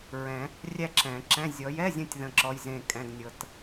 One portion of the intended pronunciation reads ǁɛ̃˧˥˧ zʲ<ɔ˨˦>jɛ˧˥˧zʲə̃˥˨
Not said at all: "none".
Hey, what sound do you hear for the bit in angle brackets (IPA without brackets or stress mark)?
ɔ˨˦